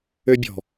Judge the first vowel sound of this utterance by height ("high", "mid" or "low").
mid